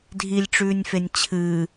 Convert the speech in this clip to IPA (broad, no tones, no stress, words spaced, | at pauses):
dʱilʲʈ͡ʂʉːnʲfenʲ t͡ɕʰɨː